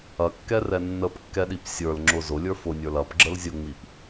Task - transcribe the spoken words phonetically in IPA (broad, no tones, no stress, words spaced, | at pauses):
ɐkːɛrɛ nːəpkːɛɗip sʲə˞lŋ͡ǁʊ zʊlʲə˞ fʊnʲə˞l ɐpɡ͡ǁəl zʲʊŋ͡mip